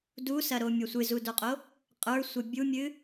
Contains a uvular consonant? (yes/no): yes